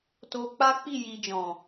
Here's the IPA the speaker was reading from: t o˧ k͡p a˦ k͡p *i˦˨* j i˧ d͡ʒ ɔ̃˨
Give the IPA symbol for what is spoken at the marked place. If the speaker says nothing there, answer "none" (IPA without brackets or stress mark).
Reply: i˦˨